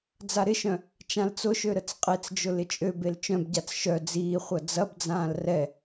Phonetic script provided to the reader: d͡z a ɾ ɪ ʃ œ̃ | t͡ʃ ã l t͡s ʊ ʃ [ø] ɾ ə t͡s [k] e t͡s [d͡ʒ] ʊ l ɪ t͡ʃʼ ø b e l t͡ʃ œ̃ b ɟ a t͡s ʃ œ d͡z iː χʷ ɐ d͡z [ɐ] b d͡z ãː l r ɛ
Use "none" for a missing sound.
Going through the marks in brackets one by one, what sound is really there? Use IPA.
ø, qʼ, d͡ʒ, ɐ

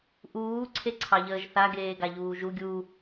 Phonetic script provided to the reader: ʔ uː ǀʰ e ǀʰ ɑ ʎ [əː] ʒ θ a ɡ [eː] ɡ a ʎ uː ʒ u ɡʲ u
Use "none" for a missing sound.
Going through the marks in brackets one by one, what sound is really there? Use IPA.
əː, eː

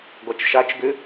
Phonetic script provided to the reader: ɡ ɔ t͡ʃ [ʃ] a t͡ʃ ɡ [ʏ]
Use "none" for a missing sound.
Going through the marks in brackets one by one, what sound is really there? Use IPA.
ʃ, ʏ

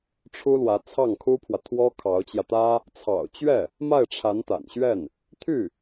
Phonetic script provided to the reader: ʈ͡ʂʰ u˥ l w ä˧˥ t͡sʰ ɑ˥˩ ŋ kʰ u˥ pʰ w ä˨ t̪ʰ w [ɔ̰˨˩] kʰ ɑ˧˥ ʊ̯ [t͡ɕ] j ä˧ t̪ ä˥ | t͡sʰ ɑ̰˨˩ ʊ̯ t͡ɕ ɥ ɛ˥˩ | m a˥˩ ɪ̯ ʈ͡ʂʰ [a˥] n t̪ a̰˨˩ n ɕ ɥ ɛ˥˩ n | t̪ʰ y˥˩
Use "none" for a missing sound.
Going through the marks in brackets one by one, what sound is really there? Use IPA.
ɔ˥, t͡ɕ, a˧˥

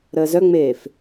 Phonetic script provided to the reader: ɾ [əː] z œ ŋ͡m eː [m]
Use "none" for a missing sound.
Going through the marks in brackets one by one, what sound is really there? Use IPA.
əː, f

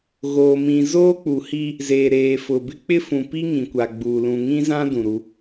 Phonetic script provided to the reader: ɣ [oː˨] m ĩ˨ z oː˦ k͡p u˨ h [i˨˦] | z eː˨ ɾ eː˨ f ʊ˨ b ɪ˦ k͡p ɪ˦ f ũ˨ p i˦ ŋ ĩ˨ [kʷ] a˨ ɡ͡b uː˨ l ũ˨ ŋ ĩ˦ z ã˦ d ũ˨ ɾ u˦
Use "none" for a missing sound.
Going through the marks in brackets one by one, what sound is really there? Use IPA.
oː˨, i˦, kʷ

